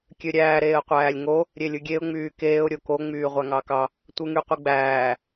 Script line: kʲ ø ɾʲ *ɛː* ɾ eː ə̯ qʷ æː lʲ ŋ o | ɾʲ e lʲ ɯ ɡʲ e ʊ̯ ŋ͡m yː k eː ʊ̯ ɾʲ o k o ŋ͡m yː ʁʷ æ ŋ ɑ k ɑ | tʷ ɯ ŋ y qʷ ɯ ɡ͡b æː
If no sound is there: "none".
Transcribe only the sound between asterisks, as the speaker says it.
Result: æː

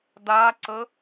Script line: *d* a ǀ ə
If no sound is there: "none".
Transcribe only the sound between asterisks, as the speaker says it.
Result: d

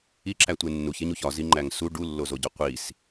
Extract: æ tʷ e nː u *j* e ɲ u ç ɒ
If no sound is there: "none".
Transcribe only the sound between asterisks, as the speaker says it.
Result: ç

